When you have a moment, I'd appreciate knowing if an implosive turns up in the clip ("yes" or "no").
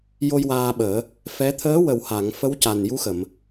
yes